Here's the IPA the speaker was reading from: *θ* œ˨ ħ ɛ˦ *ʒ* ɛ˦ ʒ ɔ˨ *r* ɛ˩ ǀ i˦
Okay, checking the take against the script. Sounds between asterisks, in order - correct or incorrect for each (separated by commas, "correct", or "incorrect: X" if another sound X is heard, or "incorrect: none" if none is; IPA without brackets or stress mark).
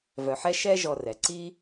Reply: incorrect: v, incorrect: ʃ, correct